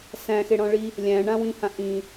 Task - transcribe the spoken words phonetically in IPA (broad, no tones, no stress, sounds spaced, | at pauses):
s æ̃ x e ɽ ɔ̃ ɭ i | lʲ æ̃ ɳ ã w ĩ h ã ʔ ĩ